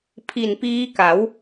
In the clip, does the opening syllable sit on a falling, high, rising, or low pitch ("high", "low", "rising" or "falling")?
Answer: low